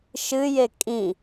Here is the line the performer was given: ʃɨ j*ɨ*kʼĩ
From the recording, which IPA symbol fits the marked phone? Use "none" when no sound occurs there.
e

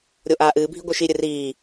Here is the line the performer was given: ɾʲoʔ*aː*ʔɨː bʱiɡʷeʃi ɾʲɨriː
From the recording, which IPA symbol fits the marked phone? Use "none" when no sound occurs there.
aː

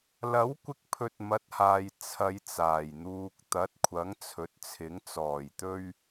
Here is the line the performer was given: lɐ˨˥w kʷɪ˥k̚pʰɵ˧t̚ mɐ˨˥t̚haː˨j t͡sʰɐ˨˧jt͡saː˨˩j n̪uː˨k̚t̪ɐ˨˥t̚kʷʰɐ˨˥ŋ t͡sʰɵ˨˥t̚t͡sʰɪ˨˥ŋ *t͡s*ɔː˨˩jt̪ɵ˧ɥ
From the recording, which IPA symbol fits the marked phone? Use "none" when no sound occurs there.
t͡s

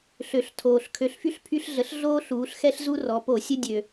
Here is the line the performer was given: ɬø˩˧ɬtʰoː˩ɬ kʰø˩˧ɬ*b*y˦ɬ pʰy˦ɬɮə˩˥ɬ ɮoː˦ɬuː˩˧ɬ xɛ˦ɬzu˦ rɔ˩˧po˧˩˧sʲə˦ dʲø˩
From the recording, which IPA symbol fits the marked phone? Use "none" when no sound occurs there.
f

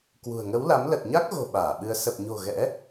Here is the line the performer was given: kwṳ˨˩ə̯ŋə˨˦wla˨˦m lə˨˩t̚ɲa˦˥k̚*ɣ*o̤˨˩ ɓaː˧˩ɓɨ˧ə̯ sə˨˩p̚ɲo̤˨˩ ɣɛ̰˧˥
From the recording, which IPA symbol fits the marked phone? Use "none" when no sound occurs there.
ɣ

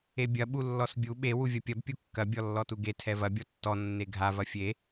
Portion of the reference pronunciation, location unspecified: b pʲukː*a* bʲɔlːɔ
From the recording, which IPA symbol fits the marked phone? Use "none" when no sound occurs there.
ɐ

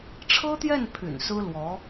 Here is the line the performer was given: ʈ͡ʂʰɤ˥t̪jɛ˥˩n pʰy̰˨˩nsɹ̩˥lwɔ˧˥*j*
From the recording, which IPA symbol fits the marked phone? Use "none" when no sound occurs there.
none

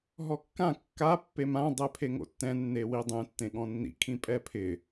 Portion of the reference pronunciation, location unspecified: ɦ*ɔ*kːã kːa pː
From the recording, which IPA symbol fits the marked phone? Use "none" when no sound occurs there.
ɔ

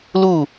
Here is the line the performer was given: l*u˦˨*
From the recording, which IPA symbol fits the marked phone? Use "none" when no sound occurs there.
u˦˨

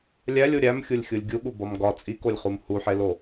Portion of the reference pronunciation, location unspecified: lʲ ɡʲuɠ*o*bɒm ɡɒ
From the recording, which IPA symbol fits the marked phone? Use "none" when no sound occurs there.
u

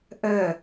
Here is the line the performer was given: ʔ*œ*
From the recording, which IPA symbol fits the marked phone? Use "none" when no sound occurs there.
œ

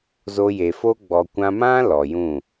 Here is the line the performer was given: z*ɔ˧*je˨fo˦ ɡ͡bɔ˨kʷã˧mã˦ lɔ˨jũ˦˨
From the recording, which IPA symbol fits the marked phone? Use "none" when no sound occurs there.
o˧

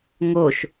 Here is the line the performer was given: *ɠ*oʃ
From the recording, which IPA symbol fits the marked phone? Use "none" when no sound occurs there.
ŋ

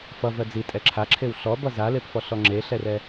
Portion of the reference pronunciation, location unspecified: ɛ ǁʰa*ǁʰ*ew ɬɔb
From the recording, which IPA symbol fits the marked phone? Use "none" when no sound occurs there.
ǁʰ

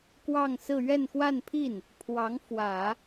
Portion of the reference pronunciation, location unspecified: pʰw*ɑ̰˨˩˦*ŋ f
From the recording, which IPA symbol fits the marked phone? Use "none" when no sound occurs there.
ɑ˧˥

